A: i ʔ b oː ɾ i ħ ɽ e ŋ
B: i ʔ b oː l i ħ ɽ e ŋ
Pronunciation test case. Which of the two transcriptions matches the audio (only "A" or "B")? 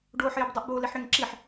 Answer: B